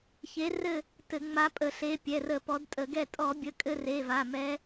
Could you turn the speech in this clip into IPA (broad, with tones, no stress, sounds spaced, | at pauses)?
ç e˨˦ r ɘ˦˨ | t ɘ˧˩˧ ŋ͡m a˨˦ pʼ ə˧˩˧ ɬ e˩˧˩ pʲ ɛ˩˧˩ r ə˧˩˧ p ɔ˨˦ d tʼ ə˧˩˧ ɡ ɛ˦˨ tʼ ɔ˧˩˧ bʲ ə˩˧˩ kʼ ɘ˦˨ r e˩˧˩ v a˩˧˩ m ɛ˨˦